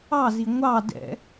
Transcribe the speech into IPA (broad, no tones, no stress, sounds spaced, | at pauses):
ɑ z i ŋʷ ɑ d ɛ̰